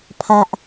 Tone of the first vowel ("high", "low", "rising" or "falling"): low